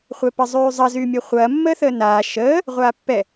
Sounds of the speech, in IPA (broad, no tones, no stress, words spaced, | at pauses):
χʷɛpəzˤyːzˤɐ zyːmʲɛχʷɐː mːəːθəːnaː ʃəː | ʁʷaːpːɛ